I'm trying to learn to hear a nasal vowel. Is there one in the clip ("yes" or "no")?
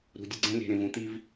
yes